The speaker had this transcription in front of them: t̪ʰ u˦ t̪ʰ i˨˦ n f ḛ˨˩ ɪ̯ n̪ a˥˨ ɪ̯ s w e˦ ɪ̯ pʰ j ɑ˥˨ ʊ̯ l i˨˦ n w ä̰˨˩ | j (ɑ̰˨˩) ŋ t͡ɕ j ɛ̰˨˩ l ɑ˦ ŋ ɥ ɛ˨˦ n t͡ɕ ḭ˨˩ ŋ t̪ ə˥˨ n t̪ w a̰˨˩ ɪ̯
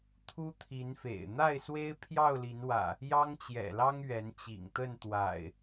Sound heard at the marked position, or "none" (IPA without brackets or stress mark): ɑ˦